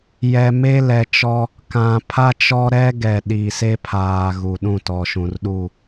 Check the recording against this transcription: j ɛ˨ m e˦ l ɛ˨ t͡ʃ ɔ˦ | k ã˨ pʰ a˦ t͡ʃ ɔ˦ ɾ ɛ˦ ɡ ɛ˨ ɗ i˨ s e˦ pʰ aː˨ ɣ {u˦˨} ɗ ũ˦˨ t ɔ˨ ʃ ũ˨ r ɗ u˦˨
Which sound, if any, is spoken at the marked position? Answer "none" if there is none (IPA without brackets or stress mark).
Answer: u˨